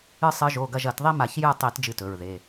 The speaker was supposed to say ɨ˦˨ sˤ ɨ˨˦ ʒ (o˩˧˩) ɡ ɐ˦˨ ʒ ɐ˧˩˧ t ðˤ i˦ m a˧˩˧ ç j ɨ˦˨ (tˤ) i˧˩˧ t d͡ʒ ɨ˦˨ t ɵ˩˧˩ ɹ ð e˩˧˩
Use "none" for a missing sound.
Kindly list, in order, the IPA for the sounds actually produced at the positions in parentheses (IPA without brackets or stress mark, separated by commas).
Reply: o˩˧˩, tˤ